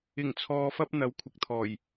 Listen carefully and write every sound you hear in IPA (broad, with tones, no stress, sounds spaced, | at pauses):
ɪ˨˩ ŋ t͡sʰ ɔː˨ f ɐ˧ p̚ n̪ ɐ˨˥ w kʷʰ ɪ˨ k̚ t̪ʰ ɔː˨˩ j